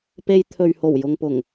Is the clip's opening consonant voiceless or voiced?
voiceless